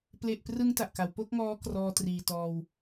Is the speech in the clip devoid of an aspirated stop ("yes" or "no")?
yes